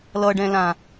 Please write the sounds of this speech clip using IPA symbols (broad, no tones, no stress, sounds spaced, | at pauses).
l ʌ ɖ ɛ̃ l ã